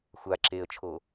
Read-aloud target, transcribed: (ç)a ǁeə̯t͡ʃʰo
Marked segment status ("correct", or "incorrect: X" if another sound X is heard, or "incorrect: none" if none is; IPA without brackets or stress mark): incorrect: xʷ